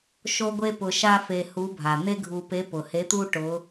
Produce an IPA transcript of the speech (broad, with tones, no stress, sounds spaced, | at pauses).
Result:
ʃ o˥ ɡʷ e˥ p ʊ˧ ʃ a˥ f e˧ h u˧˥ bʱ a˩ n̪ e˥ ɡʱ u˧ p e˧˥ p ʊ˩ h e˧˥ t̪ u˥ ʈ ʊ˧˥